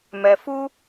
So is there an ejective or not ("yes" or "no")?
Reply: no